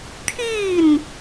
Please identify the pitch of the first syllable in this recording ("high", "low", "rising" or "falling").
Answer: falling